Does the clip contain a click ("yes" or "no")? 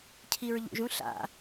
no